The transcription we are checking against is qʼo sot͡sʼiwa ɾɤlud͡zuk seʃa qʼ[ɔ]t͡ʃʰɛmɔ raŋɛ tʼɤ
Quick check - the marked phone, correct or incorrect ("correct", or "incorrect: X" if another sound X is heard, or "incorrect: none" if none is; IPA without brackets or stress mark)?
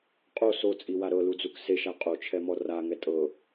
incorrect: o